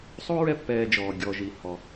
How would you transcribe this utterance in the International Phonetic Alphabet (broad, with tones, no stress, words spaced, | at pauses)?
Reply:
sˤo˥ɹɛ˦pːɛː˨d͡ʒɔː˩ ɡʲɔ˩ʒi˩ hɔ˩